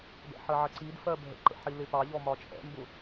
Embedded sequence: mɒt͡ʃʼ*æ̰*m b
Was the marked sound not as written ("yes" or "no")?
yes